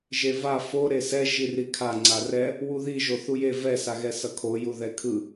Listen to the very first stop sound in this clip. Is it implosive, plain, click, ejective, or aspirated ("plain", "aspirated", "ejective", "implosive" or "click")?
aspirated